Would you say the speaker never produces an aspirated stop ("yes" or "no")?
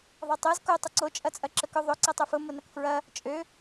yes